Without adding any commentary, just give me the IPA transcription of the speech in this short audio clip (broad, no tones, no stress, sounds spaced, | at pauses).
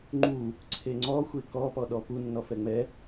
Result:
ŋ͡ǃ u | ǀʰ e ŋ͡ǀ ɔ xʷ e k ɔ p ɔ ɗ ɔ p u nː ɔ f ɛ ŋ͡m ɛ